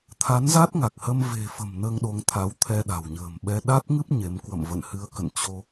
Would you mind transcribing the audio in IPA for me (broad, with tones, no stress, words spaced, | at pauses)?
t̪ʰa˨˦nza˦˥t̚ŋa˨˩k̚hə˧m ve̤˨˩fə̤˨˩m nəː˧ŋɗo˨˦ŋt̪ʰa˨˦wt̪ʰɛ˧ ɗa̤˨˩wɲə̤ː˨˩mɓɛ˧ ɗa˦˥t̚ŋɨ˦˥p̚ ɲe˨˦m kwə̰˧˨mvə̰˧˨nhɨ˨˦ə̯ kə̰˧˨nt͡ɕo˧